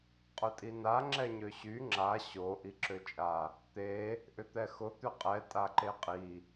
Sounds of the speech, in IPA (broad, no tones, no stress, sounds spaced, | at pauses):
qʼ ʊ tʼ i n a ŋ͡ǁ ɛ ɲ ø ɕ y ŋ͡ǁ a ɕ o ʔ i ǁ ø t͡ʃʼ a | t̪ e | ʔ ʏ t̪ ɛ x ʊ t̪ ʏ qʼ ɛ tʼ a ǃ e qʼ i